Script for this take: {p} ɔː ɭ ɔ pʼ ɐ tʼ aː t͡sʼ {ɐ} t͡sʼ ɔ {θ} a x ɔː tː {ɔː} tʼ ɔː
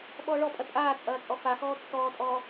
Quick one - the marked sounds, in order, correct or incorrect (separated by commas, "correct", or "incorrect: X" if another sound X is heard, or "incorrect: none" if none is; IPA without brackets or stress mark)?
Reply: incorrect: ɓ, incorrect: ɐː, incorrect: f, correct